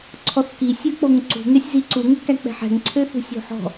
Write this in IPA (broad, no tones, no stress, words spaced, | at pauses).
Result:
ǀʰɔθki sʲɵk͡poŋǀṳ ŋɛsʲziǀu ŋøkæk͡pɛ̤ħɛ̤ŋ ǀʰøθṳsʲo̤ħɔ̤